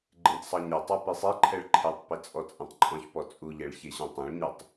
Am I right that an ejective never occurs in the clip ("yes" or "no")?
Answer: no